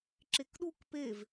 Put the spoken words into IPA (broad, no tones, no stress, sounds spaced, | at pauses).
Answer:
ǁ e k ɗ u k p e v